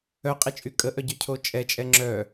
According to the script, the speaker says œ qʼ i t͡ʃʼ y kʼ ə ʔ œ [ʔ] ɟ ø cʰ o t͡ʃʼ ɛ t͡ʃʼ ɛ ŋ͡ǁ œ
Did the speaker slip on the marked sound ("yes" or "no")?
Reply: yes